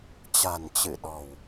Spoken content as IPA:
t͡ɕa̤˨˩nt͡ɕɨ˧˩ɗɔ̤˨˩w

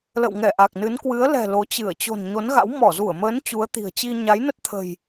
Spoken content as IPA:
lə̰˧˨wŋɛ˧˩ ʔa˨˩k̚nɨ˨˦n kwɨ˨˦ə̯lɛ̤˨˩ lo˨˦t͡ɕɨ˧˩ə̯ t͡ɕo̤˨˩n ɲo˨˦nɣa̰˧˥w mɔ˧˩zu˧˩ə̯məː˨˦n t͡ɕu˨˦ə̯t̪i̤˨˩ə̯t͡ɕi˧ ɲa˨˦jnə˦˥t̚ t̪ʰə̤˨˩j

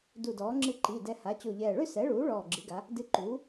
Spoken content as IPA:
du˧˩dɔː˩˥ ŋ͡ǁɨ˧ǃi˩˧˩ dɛ˧ ha˩˥t͡ɕo˧˩ʎɛː˧˩ ɭʏ˥˧sɛ˩˥ɭuː˩˥ ɭɔː˧˩ɡ͡ǁɨ˩˥ɡa˩˥ | dɨ˧ǃuː˩˥

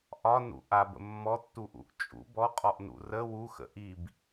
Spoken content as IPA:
ʔɒnṵ ʔabə̰ mːɔtːuʔṵʔ t͡ʃʼṵ bɔqʼɔʔnṵ rə wuxə̰ ʔib

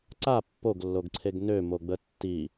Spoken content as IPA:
ǀa pːoɡlːoɡǀʰeɡ nømoɡ͡bə tːi

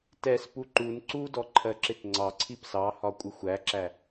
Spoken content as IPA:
tɛspu ǃun ǀudɔ ǃʰɜǁɪtŋ͡ǀɑǀʰip sɑhɒ kʷʼɪxʷæǁæ

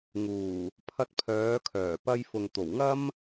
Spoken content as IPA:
ŋuː˨˩ | pʰɐ˧t̚pʰœː˨˧kʰœː˨˩ pɐ˧jfʊ˨ŋt̪o˨˩wŋɐ˥m

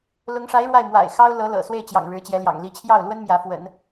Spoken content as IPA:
lʊ˧˥ŋʂa˧˥ɪ̯ ɻwa˥˩ɪ̯mwa̰˨˩ɪ̯xɑ˥ʊ̯ lɤ˧˥lɤ̰˨˩ swe˥˩ɪ̯t͡ɕjɑ̰˨˩ŋ ɻɻ̩˧˥t͡ɕjɛ˧˥ljɑ̰˨˩ŋ li˧˥t͡ɕʰjɑ˥˩ʊ̯lwə˥n mjä˧˥fwə̰˨˩˦n

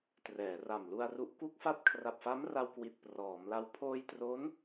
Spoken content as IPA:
trɛː˩˦ra˨˩mlu˧a̯ru˦˥ʔ ku˥˩k̚fa˥˩t̚ kʰra˨˩p̚fa˦˥mra˧w kwi˨˩t̚prɔː˩˦mla˧w pʰoː˧jtro˦˥n

